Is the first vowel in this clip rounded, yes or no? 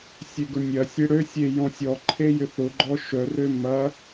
yes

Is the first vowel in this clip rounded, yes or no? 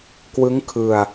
no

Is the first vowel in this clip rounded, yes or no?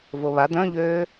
yes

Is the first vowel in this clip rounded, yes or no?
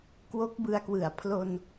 yes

